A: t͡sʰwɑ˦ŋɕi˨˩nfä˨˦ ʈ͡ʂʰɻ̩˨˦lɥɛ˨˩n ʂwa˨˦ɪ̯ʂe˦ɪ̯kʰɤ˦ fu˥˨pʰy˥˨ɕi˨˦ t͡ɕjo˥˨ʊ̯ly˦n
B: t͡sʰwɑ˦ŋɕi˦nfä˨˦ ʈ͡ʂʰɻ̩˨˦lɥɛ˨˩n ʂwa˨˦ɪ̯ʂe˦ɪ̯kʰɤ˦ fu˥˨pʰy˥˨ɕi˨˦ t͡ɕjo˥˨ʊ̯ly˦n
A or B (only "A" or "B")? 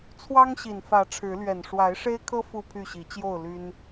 A